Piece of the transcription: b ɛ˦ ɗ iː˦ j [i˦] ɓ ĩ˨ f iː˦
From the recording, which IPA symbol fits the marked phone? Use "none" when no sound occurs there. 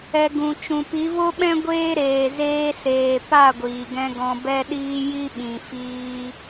i˦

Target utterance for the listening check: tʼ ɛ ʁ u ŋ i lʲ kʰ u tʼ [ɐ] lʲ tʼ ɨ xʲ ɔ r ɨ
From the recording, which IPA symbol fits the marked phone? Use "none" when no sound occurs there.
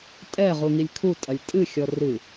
ɐ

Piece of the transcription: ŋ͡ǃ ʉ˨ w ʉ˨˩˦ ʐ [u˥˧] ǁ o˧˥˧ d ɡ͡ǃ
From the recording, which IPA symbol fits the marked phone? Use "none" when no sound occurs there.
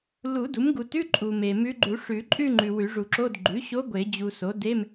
u˨˩˦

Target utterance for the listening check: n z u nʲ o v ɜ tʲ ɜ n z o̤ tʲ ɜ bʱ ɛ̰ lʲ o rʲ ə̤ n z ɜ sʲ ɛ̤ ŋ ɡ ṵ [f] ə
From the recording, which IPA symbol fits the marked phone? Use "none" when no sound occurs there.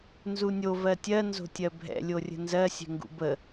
b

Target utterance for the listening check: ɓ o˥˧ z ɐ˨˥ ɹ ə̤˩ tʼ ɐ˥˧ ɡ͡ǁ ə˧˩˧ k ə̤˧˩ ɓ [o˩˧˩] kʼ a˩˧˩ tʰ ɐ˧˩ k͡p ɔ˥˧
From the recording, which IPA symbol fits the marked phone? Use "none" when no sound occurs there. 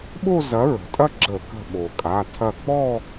o˩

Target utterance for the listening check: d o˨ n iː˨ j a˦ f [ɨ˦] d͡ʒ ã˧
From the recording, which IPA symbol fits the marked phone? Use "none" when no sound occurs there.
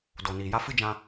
ɨ˦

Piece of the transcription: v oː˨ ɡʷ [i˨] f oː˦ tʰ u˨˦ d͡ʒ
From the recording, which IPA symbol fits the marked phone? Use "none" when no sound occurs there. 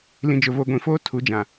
ĩ˨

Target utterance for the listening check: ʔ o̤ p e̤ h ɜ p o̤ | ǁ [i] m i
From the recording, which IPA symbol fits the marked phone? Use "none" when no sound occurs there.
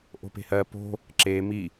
e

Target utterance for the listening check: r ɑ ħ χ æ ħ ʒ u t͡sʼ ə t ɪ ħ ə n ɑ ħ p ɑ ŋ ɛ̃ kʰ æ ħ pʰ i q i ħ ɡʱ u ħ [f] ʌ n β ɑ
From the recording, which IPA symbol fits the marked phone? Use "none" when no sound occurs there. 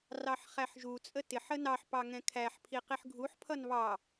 pʰ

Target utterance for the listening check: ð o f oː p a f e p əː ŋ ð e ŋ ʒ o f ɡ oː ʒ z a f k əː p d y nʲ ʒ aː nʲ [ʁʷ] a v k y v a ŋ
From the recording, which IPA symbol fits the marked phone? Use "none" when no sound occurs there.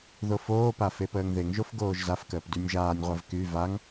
ʁʷ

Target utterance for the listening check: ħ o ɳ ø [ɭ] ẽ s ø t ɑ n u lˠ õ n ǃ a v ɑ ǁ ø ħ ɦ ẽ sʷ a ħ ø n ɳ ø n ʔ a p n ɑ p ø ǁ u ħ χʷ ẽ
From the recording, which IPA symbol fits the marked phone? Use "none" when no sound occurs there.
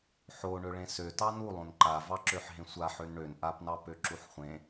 ɭ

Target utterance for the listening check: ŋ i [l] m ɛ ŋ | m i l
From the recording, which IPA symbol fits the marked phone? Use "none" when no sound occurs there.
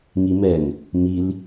none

